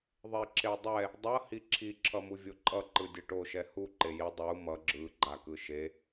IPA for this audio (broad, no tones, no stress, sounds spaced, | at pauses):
ðˤ e ǁ e dˤ ɛ | dˤ ʌ h i ǁʰ i ǁʰ ʌ m u vʲ o ǃʼ ʌ ǃ ɯ dʲ ʌ ʈ o ʃ ɛ h u ǃ e j i dˤ u m ʌ ɡ͡ǁ ɯ ɡ͡ǃ a k ɯ ʃ e